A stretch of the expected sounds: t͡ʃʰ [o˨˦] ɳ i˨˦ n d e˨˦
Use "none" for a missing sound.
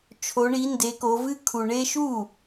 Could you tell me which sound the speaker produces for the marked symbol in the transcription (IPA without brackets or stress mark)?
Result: o˨˦